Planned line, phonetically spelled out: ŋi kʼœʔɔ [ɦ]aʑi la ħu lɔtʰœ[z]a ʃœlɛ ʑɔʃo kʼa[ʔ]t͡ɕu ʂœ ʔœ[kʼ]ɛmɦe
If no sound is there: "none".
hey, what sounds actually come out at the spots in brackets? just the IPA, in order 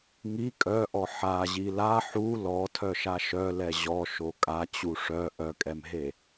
ħ, ʃ, none, kʼ

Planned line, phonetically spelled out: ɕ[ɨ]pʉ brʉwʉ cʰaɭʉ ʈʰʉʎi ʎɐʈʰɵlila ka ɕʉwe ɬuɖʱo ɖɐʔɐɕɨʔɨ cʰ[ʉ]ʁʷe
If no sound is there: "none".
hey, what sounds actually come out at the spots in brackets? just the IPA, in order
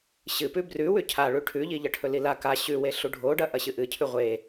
ɨ, ʉ

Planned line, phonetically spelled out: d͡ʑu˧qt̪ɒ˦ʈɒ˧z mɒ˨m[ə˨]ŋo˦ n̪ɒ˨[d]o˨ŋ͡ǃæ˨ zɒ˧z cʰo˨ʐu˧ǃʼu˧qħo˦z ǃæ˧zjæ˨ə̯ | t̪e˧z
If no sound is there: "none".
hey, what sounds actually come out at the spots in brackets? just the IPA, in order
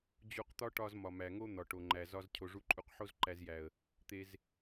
æ˨, ʈ

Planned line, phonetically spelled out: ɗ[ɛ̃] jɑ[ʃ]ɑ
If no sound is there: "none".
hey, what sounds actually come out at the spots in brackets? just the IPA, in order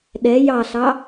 ɛ, ɬ

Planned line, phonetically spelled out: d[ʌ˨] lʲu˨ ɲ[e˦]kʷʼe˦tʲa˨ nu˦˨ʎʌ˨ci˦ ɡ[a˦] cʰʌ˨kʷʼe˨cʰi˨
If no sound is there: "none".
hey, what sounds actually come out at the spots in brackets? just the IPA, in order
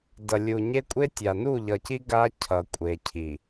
ʌ˨, e˦, a˦

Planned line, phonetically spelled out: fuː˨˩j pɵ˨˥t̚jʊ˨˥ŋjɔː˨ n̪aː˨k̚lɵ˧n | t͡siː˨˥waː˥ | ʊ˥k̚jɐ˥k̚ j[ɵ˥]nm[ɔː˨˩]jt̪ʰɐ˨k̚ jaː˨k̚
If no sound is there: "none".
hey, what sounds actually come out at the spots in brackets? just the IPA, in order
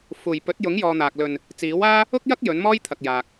ɵ˨˥, ɔː˥

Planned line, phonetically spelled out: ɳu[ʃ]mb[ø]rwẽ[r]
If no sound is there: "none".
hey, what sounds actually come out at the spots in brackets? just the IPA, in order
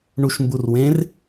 ʃ, u, r

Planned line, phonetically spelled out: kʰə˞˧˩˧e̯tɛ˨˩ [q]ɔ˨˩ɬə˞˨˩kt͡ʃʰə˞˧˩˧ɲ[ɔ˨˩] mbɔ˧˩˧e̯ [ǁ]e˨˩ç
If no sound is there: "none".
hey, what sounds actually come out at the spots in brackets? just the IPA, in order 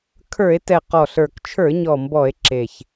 q, ɔ˨˩, ǁ

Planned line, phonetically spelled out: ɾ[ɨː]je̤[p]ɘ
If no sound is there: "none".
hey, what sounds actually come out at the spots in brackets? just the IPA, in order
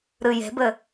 ɨ, b

